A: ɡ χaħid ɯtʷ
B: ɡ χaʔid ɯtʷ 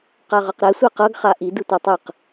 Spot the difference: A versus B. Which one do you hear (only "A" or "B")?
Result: B